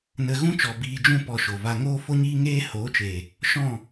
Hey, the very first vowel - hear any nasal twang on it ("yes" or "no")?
no